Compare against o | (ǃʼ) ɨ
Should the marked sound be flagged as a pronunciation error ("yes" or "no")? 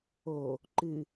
yes